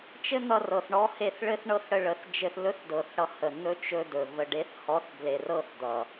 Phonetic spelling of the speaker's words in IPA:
t͡ʃ ɘ˦ n̪ ʌ˧ r ɤ˨ θ ɳ ɔ˧ h e˧ θ ɭ ɘ˦ θ ɳ ɤ˦ θ ɽ ə˧ ɭ ə˨ θ d͡ʒ ɘ˧ θ l ɵ˦ θ d ɤ˨ θ ɽ ʌ˧ h ə˨ n̪ ɵ˦ t͡ʃ ɵ˧ d ɵ˨ v ə˨ ɖ e˨˦ θ h ɔ˨˦ θ b l e˨ r ɤ˦ θ d̪ ʌ˨

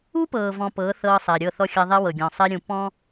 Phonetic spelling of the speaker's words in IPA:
u˦ p ɤː˨ v ɔ̃˨ p ɤː˨˦ θ ɤː˦ sˤ ɛ˨ ɾʲ ɤ˦˨ θ ɔ˦ xʲ a˦ ðˤ ɛ˦ w ɤ˨ ɡʲ ɔ̃˨ sˤ ɛ˦ ɾʲ ũ˨ p ɔ̃˦

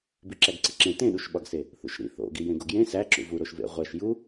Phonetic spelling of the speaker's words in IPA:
b i ǁ æ ɡ ǀ i ǁ ẽ t ẽ ɗ u ʃ ɓ ɒ ɡ s e | θ ṵ ʃ ɾ ḭ θ o̰ ɡ i j ẽ ɡ o ɡ j ẽ s æ ǁ ṵ v u ɾ o ʃ v ḛ ʁʷ æ ʃ j u

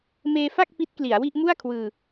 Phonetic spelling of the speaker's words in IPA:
m eː˧ f a˥˩ k̚ p i˦˥ t̚ k l i˩˦ a̯ w i˥˩ ʔ m u˥˩ a̯ kʰ w ɯː˧

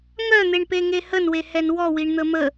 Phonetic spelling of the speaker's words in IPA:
ŋ œ n̪ e ɳ p e ŋ e h ə n w e h ɛ n w ɔ w i ɳ n̪ ə m ə

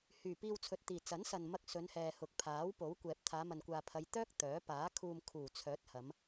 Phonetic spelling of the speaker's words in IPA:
h yː˨˩ p iː˧ w t͡sʰ ɵ˨ t̚ t̪ iː˨˩ t͡s ɐ˨˥ n s ɐ˨ n m ɐ˧ k̚ s ɵ˨˧ n h ɛː˨ h ʊ˨ k̚ pʰ aː˨˥ w p o˨˥ w kʷ ɛː˨ p̚ t̪ʰ aː˨˧ m ɐ˨ n kʷ aː˨ pʰ ɐ˨˧ j t̪ œː˥ k̚ t̪ œː˨˥ p aː˨˥ kʰ uː˧ m kʰ uː˨˩ t͡sʰ œː˨˥ t̚ h ɐ˨˧ m

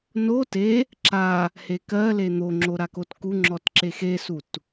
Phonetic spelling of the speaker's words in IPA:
n o t e | ǁ a | h e k ɜ l e n̪ o ŋ͡ǁ o ɾ a k o t k u ŋ͡ǁ ɔ t ǁ e x e s u t

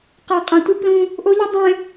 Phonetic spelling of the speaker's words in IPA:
q a˨ qʼ ã˨ tʷ ɯ˦ p l ũ˦ | ʔ o˦ ʎ ɯ˦ dˤ ẽ˦

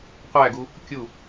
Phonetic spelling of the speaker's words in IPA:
qʷ æ ɡ u | kʲ u

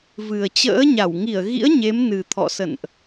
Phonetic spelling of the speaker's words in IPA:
v ɨ˨˩ ə̯ t͡ɕ ə̰ː˧˥ ɲ a˧˩ w ŋ i˧˩ ə̯ ɣ ḭ˧˥ ə̯ ɲ e˨˦ m n ɨ˨˩ t̪ʰ ɔ̰˧˨ s ə̰˧˨ n ʔ

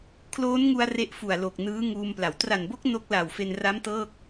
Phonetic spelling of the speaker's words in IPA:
kʰ l oː˦˥ n ŋ u˧ a̯ r e˦˥ ʔ f u˨˩ a̯ l o˨˩ k̚ n ɯː˦˥ ŋ uː˧ m p l a˩˦ w t r a˨˩ n b o˦˥ k̚ n o˦˥ k̚ l a˨˩ w f e˧ n r a˦˥ m t ɤː˥˩ k̚

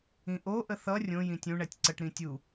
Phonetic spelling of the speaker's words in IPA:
ĩ ʔ o ʔ ə θ ʌ rʲ õ j ĩ tʲ ũ ɳ ɛ tʲ ǀ ə ʈ ɾ ĩ tʲ u

